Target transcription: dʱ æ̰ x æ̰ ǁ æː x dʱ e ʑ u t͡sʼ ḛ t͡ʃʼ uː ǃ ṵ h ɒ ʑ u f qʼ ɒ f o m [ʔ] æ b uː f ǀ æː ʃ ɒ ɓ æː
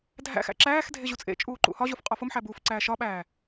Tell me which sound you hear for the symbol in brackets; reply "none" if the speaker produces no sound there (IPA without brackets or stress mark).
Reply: ħ